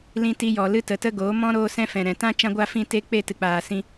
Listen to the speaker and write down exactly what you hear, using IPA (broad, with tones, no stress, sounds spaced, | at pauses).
l ĩ˧ t i˧ j ɔ˨ l ɨ˧ t ə˨ t ə˧ ɡ oː˨˦ m ɔ̃˦ ɾ oː˧ s ɛ̃˧ f ɛ̃˨ ɾ ɛ̃˨ t ã˦ t͡ʃ ã˧ ɡʷ a˦ f ĩ˦˨ t e˦ k͡p e˦˨ t ɨ˨ k͡p aː˨ s ĩ˧